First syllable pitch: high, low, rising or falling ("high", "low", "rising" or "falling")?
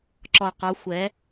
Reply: low